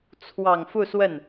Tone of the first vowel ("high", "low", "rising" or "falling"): low